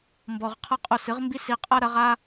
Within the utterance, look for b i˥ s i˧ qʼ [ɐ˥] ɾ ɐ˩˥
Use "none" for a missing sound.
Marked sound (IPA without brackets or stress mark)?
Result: ɐ˥